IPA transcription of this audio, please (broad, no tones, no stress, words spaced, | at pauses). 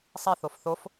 sˤi θofθof